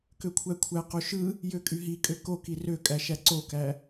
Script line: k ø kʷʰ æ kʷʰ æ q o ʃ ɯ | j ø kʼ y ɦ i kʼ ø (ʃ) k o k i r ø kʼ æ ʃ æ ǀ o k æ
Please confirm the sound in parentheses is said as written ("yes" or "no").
no